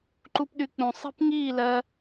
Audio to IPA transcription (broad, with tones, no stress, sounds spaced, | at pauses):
ǃ u˦ p ɗ y˧ k͡p ũ˨ sˤ i̤˦ p ŋ iː˦˨ l ɜ˦